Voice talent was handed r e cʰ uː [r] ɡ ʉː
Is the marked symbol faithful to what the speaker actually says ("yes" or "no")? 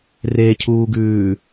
no